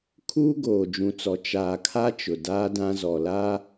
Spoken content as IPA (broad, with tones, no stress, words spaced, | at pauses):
kʰuː˦ɡoː˨d͡ʒũ˨t͡sɔ˨ t͡ʃaː˨kʰa˦ t͡ʃʊ˨daː˦dã˦ zɔ˨la˦